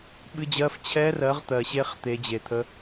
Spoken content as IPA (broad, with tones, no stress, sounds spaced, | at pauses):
ɓ ɨ˧˥˧ d͡ʑ ɜ˧˥˧ f t͡ɕʰ ɛ˦˥ r ɜ˨˥ ʁ t̪ ɜ˨ ɕ e˦˥ χ t̪ e˨˥ d͡ʑ e˨ t̪ʰ ə˦˥